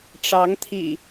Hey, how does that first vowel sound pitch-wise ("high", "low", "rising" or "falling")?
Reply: rising